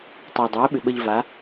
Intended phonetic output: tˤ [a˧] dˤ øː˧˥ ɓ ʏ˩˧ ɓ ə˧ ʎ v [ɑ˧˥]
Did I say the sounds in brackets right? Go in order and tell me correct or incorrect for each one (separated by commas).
correct, incorrect